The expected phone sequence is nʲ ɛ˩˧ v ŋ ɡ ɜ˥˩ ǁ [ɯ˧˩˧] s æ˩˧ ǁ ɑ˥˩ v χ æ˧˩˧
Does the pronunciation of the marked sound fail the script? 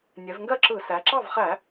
no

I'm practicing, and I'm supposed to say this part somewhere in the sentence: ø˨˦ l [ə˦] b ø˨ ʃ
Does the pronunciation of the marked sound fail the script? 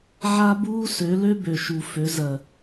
yes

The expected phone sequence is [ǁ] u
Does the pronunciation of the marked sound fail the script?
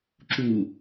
no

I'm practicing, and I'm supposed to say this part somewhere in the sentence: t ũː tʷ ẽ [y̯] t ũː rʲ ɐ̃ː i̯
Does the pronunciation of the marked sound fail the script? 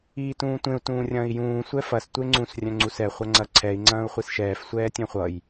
yes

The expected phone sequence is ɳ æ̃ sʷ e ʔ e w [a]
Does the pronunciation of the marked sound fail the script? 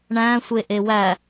yes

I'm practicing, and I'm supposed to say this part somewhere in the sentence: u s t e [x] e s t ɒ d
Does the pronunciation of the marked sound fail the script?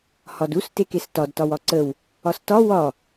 yes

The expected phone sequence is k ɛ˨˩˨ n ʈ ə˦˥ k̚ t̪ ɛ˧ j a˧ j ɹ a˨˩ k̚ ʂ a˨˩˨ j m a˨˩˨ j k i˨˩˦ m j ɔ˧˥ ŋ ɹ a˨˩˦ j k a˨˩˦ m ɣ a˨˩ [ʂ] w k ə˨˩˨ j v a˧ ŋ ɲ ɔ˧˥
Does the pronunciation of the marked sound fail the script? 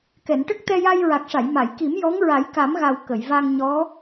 yes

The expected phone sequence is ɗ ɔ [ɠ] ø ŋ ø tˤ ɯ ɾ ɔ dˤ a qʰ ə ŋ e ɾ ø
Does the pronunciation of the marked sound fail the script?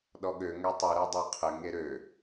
no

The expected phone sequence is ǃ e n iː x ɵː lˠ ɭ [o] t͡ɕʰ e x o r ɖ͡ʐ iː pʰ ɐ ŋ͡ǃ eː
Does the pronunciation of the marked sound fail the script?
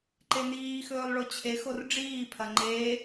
no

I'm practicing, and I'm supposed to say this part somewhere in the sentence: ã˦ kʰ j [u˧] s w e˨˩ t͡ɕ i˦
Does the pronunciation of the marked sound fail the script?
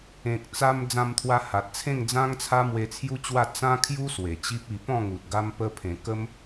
yes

